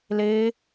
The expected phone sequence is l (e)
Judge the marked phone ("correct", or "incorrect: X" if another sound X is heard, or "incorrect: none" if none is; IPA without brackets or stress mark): correct